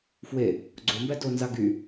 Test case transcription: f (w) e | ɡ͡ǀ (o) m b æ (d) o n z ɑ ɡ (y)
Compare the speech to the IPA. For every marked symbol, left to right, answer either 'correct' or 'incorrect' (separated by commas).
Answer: correct, correct, correct, correct